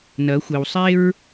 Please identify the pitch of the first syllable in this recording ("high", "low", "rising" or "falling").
rising